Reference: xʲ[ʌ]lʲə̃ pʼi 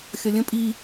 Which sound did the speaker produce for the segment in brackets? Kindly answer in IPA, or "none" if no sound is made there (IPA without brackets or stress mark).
ʌ